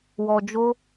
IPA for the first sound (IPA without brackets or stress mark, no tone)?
w